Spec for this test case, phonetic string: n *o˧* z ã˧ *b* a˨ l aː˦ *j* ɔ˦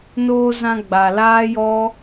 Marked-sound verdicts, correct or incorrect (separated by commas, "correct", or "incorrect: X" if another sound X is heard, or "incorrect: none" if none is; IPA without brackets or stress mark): incorrect: oː˧, incorrect: ɡ͡b, correct